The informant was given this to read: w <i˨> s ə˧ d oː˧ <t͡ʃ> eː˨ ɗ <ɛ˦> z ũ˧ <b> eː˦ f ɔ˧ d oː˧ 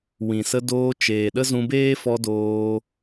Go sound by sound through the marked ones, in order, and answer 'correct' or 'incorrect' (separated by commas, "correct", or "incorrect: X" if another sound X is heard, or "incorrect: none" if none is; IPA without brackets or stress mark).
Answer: incorrect: ĩ˨, correct, incorrect: ə˦, correct